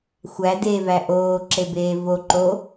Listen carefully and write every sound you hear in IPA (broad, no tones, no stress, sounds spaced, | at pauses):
xʷ æ d eː v æ ʔ oː ǁ e b eː v o ǃ o